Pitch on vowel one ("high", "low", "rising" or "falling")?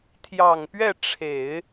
low